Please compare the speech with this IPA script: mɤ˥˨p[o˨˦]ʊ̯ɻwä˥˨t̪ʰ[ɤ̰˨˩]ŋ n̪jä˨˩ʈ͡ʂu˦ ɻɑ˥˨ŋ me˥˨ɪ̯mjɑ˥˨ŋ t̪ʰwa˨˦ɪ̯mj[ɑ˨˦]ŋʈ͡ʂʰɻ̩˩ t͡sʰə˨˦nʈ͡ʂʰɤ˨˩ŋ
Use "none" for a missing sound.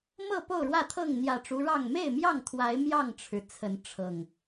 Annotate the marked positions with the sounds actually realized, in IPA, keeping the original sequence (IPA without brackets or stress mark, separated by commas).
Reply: o˥˨, ɤ˥˨, ɑ˥˨